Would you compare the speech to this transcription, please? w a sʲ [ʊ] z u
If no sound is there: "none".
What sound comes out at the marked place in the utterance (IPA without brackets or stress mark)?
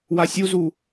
u